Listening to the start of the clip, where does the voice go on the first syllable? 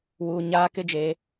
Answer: low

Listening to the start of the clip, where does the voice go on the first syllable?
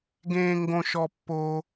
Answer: high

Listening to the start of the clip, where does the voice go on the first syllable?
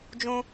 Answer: high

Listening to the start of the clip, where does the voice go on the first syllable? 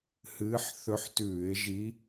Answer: rising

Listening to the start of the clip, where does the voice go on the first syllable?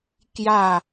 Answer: falling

